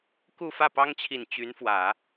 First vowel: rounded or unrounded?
rounded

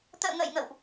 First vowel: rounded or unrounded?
unrounded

